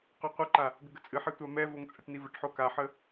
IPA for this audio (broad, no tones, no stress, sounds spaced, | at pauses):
q o qʷ ɨ ǃ a | ɡ ə ɡ ə t͡sʼ ɨ ħ ɛ tʷ a m ɛ v o ŋ t͡sʼ ɛ ʈ n i v ə ʈ ħ o k a ħ ə